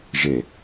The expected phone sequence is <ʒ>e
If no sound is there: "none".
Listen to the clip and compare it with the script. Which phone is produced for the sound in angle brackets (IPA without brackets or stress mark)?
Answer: ʒ